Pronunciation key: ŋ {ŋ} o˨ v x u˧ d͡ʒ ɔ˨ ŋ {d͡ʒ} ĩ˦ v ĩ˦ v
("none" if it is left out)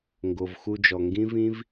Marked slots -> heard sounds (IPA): ɡ, ɡ

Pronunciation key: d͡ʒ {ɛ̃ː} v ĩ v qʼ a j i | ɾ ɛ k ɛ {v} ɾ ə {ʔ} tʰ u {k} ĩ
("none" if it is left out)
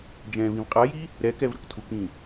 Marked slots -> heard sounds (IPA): ɛ̃ː, v, k, k

